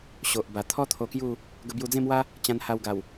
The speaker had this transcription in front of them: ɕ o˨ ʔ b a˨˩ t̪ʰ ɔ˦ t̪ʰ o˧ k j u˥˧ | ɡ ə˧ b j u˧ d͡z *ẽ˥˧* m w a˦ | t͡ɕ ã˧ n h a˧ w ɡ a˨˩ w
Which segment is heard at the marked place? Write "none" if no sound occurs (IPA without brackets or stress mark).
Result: ẽ˥˧